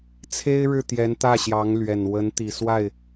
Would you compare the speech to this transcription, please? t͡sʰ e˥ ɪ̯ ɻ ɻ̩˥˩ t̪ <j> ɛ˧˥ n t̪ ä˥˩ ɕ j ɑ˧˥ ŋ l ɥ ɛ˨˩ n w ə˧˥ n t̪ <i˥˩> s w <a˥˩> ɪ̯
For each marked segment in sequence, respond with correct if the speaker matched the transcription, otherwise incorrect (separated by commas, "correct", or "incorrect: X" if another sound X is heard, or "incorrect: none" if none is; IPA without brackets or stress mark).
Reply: correct, incorrect: i˨˩, correct